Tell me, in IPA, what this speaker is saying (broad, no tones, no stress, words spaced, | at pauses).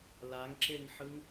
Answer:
laŋǁeŋħɯŋ